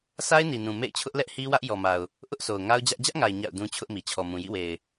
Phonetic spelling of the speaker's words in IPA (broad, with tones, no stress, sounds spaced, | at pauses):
sʰ a˦ ɪ̯ n i˨ n ũ˨ m ḛ˦˨ ɪ̯ t͡ɕʰ ʊ˦ ʔ l ɛ˦ ʔ h i˦ w ä˦ ʔ j ɔ˨ m a˨ ʊ̯ | ʔ ʊ˦ ʔ sʰ o˨ ʊ̯ ŋ a˦ ʊ̯ d͡ʑ ä˦ ʔ d͡ʑ ä˦ ʔ ŋ a˨ ɪ̯ ɲ a̰˦˨ ʊ̯ d ũ˦ t͡ɕʰ ʊ˦ ʔ m i˨ t͡ɕʰ ɔ˨ m ũ˨ j ḭ˦˨ w e˨ ɪ̯